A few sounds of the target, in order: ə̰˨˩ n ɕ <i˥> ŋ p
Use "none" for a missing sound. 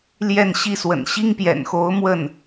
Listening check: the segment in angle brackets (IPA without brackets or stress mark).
i˥